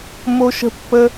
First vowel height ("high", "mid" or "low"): mid